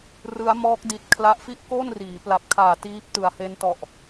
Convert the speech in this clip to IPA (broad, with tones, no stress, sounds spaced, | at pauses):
r ɯ˦˥ a̯ m ɔː˦˥ k̚ d i˨˩ t̚ kʰ l a˦˥ ʔ f i˥˩ ʔ k o˥˩ n r iː˩˦ p l a˨˩ p̚ kʰ aː˨˩ t iː˦˥ p̚ t ɯ˨˩ a̯ h e˦˥ n t ɔ˨˩ ʔ